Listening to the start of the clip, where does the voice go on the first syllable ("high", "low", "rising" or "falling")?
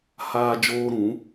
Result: high